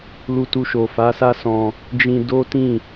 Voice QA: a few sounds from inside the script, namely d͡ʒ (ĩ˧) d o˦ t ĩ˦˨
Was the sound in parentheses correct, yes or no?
yes